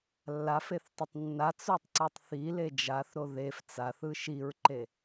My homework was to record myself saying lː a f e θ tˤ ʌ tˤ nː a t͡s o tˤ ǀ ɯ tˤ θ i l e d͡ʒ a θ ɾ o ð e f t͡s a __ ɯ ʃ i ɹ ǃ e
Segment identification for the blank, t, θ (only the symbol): θ